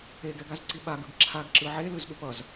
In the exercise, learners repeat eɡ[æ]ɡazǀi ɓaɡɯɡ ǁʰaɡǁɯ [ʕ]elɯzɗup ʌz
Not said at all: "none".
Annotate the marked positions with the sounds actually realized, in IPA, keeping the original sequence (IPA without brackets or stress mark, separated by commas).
ɛ, ʕ